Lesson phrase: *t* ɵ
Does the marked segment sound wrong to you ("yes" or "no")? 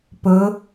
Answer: yes